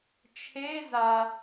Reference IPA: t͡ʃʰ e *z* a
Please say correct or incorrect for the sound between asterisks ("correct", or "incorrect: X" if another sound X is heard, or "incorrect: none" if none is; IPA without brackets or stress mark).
correct